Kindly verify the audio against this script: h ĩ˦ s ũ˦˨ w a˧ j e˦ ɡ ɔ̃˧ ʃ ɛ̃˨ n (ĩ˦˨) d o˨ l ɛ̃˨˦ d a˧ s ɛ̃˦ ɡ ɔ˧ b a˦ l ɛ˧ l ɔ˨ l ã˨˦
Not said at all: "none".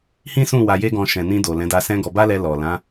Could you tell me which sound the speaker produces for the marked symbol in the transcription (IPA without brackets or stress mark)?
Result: ĩ˧